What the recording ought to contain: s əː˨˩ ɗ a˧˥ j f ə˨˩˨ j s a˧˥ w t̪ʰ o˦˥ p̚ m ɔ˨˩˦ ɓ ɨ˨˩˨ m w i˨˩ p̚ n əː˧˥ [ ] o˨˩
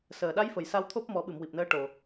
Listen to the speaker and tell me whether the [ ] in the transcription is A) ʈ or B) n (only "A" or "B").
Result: A